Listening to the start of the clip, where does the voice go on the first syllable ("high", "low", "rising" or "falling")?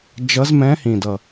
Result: rising